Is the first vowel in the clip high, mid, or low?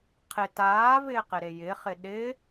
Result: high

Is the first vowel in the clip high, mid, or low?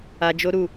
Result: low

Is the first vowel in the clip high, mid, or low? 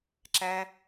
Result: low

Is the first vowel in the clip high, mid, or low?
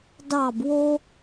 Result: low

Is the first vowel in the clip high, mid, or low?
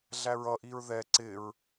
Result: low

